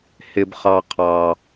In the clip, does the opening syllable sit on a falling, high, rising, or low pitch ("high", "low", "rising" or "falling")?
high